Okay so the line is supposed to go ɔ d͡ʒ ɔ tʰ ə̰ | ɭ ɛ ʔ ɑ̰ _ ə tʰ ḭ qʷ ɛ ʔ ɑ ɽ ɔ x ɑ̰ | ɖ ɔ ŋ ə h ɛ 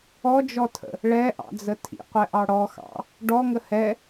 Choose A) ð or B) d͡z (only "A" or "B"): B